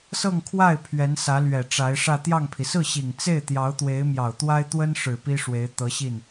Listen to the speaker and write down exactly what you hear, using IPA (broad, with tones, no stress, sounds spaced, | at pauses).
s ɤ˥˧ ŋ kʰ w a˥˩ ɪ̯ pʰ ɥ ɛ˧˥ n s ä˧˥ l ɥ ɛ˨˩ ʈ͡ʂ a˧˥ ɪ̯ ʂ ä˥˧ t̪ j ɑ˥˩ ŋ pʰ i˩ s ɹ̩˥˩ ɕ i˨˩ ŋ t͡s e˥˩ ɪ̯ t̪ j ɑ˧˥ ʊ̯ t̪ w e˧˥ ɪ̯ m j ɑ˨˩ ʊ̯ t̪ w a˥ ɪ̯ t̪ w ə˥ n ʂ ɻ̩˨˩ p i˥ ʂ w e˧˥ ɪ̯ t̪ ɤ˧˥ ɕ i˥˩ n